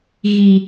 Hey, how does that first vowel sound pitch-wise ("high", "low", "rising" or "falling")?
high